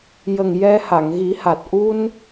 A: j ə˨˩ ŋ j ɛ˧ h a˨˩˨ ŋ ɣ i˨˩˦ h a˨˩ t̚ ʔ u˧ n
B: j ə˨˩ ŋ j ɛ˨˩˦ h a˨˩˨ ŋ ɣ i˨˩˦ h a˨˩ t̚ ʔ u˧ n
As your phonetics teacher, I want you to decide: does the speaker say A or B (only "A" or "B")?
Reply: A